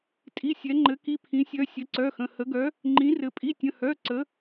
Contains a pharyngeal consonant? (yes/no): no